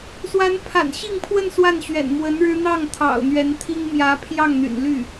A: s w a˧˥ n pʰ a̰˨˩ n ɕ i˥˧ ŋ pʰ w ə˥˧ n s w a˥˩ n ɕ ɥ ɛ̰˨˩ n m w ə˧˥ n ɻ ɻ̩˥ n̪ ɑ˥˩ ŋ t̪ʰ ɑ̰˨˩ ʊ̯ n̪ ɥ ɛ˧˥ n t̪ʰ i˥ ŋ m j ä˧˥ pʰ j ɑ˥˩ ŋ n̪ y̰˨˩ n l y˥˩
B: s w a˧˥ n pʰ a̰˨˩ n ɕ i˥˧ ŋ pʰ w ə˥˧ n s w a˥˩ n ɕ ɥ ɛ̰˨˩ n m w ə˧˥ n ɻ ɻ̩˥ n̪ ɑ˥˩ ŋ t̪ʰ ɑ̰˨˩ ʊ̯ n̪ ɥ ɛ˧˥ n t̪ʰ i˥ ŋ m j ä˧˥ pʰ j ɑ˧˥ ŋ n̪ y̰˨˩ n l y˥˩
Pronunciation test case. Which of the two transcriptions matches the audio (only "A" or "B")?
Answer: A